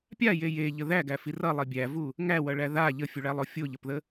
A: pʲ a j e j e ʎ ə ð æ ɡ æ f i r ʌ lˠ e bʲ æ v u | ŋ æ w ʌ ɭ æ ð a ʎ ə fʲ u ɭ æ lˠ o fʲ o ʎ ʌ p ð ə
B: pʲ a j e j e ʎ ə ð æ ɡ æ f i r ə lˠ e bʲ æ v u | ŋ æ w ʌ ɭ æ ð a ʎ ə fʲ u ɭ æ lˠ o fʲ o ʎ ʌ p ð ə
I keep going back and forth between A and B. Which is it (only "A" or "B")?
A